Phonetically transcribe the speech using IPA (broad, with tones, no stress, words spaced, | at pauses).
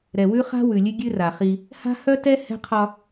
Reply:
ɾɛ˨wʉ˦χa̤˦ wʉ˨lʲʉ˦ ɡʲʉ˦ ra˨χi˦ | ha̤˦ hœ˦tɛ˦ hɛ̤˦qʰɒ˦